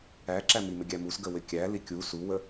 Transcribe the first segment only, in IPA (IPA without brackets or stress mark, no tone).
æ